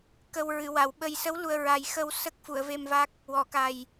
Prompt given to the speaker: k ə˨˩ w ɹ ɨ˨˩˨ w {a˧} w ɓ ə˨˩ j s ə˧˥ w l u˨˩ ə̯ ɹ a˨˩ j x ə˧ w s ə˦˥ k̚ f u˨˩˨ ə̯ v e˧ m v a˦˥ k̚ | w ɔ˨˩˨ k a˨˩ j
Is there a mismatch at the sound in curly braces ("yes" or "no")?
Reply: yes